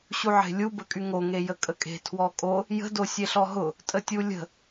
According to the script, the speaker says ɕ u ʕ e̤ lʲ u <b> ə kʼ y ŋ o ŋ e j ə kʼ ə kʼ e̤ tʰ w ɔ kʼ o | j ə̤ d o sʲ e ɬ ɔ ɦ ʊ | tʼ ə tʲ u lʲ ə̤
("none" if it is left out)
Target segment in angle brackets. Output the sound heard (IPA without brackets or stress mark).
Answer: b